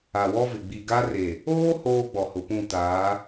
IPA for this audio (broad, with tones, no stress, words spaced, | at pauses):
a˨wɔ˦vɪ˨ ɡ͡bi˨ɡa˦re˨ | oː˦ hoː˦ɡ͡bɔ˨hʊ˨pũ˦˨ taː˨˦